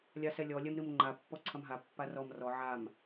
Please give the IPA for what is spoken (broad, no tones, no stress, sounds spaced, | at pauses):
lʲ a s ɛ lʲ ɔ lʲ ɛ m ɾ ɨ m ŋ͡ǃ a pː ɔ ǀʰ ɐ m ɦ a pː a r ɔ m r ɔ ʕ a m